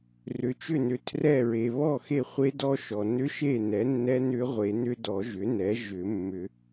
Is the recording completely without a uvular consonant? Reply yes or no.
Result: no